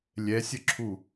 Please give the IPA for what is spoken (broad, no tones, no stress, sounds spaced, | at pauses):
lʲ ɛ sʲ ə ǁʰ u